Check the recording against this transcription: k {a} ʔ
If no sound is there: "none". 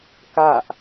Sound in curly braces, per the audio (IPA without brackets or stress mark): a